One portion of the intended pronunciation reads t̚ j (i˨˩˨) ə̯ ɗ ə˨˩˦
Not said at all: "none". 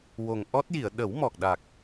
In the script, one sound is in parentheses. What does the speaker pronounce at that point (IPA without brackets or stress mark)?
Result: i˨˩˨